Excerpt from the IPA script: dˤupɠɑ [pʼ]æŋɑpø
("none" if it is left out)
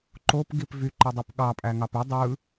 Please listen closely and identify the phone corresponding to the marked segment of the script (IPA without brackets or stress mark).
pʼ